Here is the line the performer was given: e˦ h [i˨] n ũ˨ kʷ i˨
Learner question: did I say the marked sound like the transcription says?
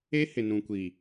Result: no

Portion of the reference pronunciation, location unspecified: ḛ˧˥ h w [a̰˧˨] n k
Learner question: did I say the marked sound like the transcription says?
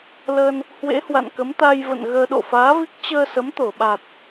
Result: yes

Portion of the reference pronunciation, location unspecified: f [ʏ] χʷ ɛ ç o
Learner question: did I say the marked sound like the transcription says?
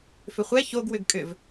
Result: yes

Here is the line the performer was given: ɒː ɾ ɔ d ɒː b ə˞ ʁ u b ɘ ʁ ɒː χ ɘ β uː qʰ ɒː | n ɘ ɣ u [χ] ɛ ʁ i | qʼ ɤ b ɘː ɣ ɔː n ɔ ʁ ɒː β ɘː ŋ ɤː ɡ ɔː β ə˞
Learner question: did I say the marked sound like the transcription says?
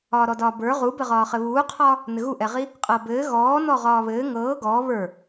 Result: no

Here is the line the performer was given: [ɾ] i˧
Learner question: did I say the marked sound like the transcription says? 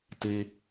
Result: no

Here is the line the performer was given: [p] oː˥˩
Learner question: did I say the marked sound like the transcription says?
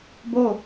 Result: no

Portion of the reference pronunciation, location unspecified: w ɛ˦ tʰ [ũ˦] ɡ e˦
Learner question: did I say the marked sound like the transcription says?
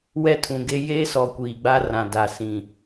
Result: no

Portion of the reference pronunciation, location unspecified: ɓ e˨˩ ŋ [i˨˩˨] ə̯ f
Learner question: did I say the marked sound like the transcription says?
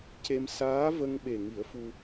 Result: no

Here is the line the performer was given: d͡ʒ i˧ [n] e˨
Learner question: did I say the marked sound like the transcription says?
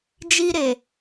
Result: no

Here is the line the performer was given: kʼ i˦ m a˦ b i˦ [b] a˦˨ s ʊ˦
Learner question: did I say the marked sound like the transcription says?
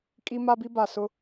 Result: yes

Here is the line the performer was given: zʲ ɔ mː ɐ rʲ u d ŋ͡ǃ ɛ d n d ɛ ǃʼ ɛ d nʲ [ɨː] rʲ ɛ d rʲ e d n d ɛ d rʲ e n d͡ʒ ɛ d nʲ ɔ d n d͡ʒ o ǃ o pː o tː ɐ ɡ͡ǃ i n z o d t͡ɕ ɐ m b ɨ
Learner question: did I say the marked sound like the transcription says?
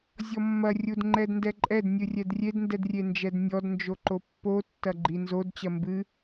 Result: no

